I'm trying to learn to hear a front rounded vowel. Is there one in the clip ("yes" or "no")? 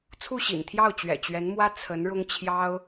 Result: no